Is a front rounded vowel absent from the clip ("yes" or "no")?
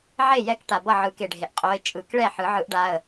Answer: yes